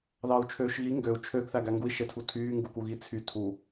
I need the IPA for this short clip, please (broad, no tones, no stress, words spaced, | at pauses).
ðɑu̯t͡ʃʰøːʃɣi ŋɡøu̯ t͡ʃʰøɡ θæɡæŋɡui̯ ʃetʰutʰyː ŋɡukuɣit͡sʰy tʰu